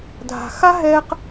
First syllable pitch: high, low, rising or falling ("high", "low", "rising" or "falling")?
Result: low